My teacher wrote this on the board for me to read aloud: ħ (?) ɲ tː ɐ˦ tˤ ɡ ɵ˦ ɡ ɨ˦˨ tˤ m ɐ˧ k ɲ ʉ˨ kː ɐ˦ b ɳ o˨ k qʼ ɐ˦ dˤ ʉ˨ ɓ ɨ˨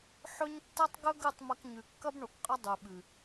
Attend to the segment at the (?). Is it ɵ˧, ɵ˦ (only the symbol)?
ɵ˦